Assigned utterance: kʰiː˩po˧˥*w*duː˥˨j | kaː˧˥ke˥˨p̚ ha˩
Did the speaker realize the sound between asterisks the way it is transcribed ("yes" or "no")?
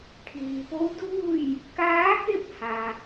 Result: yes